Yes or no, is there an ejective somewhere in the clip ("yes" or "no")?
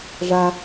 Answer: no